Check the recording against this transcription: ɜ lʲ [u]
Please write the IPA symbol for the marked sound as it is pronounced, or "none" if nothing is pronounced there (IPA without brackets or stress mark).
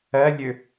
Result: ø